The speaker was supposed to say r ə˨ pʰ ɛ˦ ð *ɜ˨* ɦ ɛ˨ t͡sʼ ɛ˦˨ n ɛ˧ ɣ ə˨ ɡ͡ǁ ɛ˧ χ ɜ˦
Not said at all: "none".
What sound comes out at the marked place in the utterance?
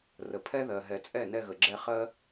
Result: ɜ˨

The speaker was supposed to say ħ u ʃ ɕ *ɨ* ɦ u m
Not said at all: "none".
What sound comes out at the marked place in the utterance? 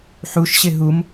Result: ɪ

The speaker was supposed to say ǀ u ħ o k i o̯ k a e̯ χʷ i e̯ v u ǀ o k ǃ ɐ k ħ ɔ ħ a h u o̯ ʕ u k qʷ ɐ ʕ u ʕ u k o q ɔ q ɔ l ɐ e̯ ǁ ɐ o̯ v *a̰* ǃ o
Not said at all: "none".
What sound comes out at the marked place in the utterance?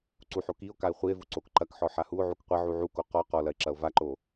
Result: a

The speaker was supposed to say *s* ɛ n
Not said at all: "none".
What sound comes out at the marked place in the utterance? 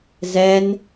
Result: z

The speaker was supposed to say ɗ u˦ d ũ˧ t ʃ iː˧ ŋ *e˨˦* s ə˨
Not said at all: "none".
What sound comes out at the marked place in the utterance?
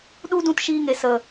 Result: e˨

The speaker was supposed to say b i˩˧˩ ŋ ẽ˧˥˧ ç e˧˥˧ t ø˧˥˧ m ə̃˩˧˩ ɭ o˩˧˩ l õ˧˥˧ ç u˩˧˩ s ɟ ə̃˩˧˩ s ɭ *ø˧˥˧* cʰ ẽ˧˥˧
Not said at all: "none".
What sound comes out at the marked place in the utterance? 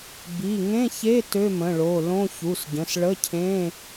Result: ə˧˥˧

